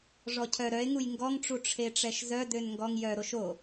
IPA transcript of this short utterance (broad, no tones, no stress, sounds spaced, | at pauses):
ʐ ɔ cʰ œ ɾ œ e̯ ŋ u j ŋ ɡ ɔ ŋ ʈ͡ʂ u ʈ͡ʂʰ e ʈ͡ʂ ɛ ʃ z œ d ø n ŋ ɡ ɔ ŋ j œ ɾ o ʃ o